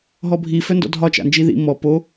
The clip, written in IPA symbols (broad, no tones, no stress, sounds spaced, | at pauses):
ɦ ɔ bʱ i f œ n d ɔ̰ dʱ ɒ t͡ʃ a̰ n d͡ʒ i ð ḭ m ɔ p o